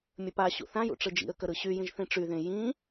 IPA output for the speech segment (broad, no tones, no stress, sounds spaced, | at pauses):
mʲ ə p a ɕ ṵ θ ã j ṵ ʈ͡ʂ ɯ d͡ʒ ḭ ə̯ k ə ɾ ɯ ɕ y j ĩ ʒ θ ĩ ʈ͡ʂ y ð ẽ j ĩ